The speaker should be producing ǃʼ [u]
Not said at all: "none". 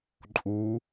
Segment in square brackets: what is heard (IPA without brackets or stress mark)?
u